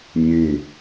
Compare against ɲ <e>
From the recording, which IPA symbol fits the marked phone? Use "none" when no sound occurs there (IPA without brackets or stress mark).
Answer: ẽ